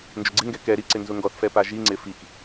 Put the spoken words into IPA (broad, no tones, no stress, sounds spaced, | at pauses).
n d͡ʒ ʊ ɡ͡ǀ ɪ ŋ ɡ ɛ k ɛ ɾ i ǀ ɪ n z ʊ ŋ ɡ ɔ θ f ɛ p a ʒ i ŋ͡ǀ ɪ f i k